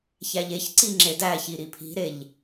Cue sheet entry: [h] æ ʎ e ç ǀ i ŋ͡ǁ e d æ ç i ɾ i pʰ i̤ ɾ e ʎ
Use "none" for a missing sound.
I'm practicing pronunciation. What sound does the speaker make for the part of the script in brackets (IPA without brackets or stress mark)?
ç